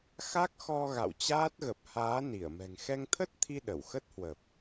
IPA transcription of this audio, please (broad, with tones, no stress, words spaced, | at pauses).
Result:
xa˦˥k̚xɔ˧ ɣa̰˧˨wt͡ɕaː˦˥t̚ɣə˨˩p̚ haː˨˦ni˧˩ə̯ mɛ̤˨˩ŋ xɛ˧ŋt̪ʰə˦˥t̚t̪ʰi˧ ɗə˧˩wxə˦˥t̚hwə˨˩p̚